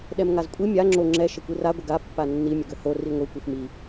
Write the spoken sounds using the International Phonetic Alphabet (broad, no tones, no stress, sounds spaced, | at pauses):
ɗ ɛ m ŋ a z kʷʼ i mʲ a ŋ͡ǁ o ŋ͡ǁ ɛ ʃ ə kʷ i r a ɡʷ ə ɡ a pː a nː i mʲ ə ɡ ɵ h o r i ŋʷ i kʷ i f m i